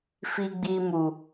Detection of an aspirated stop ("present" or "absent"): absent